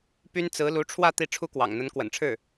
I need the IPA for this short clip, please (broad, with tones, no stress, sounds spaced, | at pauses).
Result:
p y˥ n t͡s ɹ̩˧˥ l u˧˥ ʈ͡ʂʰ w ä˥˧ t̪ i˥˩ ʈ͡ʂʰ u˥ k w ɑ̰˨˩ ŋ n̪ ə˧˥ n k w ə̰˨˩ n ʈ͡ʂʰ ɻ̩˥˩